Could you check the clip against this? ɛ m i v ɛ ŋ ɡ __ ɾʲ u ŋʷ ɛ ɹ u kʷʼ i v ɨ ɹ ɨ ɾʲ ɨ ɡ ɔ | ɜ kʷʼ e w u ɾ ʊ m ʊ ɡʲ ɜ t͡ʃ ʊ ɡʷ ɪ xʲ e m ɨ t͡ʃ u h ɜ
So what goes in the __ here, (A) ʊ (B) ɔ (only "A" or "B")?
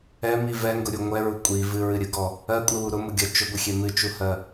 A